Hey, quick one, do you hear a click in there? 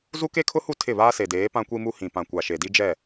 no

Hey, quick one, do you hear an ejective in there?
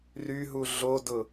no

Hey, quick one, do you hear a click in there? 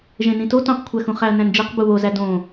no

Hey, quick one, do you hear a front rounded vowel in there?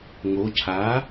no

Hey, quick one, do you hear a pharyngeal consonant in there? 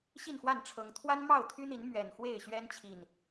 no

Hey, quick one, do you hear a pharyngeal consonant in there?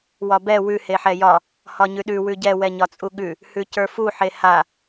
yes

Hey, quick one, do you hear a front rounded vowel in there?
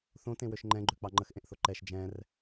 yes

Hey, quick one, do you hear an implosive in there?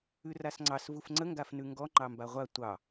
no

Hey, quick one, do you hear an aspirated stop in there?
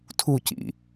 yes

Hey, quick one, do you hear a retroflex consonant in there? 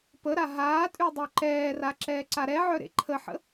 no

